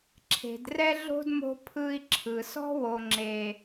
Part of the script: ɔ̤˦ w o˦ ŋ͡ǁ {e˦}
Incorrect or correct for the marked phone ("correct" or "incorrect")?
correct